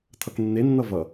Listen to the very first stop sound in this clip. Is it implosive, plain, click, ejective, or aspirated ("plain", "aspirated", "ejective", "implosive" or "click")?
aspirated